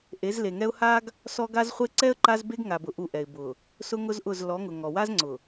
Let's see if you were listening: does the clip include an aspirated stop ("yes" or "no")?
no